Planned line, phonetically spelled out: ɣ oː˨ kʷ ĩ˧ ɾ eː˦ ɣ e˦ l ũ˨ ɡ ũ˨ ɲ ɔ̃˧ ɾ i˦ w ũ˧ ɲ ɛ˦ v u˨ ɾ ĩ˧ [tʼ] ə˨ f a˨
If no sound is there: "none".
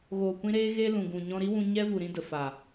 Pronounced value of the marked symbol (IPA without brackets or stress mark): d